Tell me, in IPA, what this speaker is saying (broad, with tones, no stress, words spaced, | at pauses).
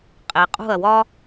qʼe˩qʼṳ˥˩ɐ̯wɒ˥